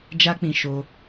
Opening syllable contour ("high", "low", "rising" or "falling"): high